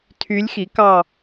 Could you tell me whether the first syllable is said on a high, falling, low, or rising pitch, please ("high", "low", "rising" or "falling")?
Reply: rising